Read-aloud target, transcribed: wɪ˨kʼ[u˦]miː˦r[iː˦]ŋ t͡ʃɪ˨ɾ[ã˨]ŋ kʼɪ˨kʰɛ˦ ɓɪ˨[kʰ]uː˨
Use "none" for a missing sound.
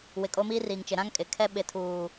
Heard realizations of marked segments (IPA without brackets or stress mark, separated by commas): o˦, iː˨, ã˦, tʰ